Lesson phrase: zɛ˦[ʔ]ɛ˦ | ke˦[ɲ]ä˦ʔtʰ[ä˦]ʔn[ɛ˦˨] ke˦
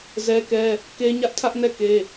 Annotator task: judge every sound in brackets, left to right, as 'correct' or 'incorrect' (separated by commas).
incorrect, correct, correct, correct